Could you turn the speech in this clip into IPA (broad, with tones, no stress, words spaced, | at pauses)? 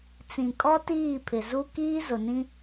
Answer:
t͡sĩ˨kʼɔ˦ tiː˦˨pʰɪ˨zu˦ kiː˦zʊ˨nĩ˦